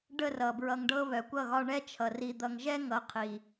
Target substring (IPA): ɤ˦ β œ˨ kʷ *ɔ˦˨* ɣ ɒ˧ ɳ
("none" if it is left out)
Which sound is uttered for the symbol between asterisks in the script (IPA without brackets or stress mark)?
ʌ˦˨